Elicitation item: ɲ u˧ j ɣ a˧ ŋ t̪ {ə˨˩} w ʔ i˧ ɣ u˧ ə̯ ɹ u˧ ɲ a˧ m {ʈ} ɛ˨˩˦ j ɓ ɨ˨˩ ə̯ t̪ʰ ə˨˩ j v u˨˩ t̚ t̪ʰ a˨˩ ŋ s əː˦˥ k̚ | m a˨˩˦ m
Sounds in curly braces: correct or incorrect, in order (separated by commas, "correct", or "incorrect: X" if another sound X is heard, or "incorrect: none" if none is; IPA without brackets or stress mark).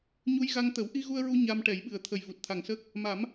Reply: incorrect: ə˨˩˦, correct